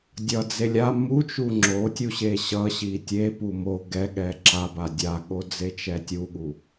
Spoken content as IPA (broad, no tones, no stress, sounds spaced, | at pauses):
dʲ ʌ d͡z e lʲ a m u t͡ʃ u ŋ͡ǁ o tʲ u ɕ e ɕ ʌ ɕ i tʲ e p u m o ɡ ɛ ɠ ɛ ǁ a b a dʲ a ɠ o d͡z e t͡ʃ ɛ tʲ u ɠ u